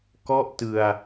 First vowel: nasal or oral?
oral